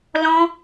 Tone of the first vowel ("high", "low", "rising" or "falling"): high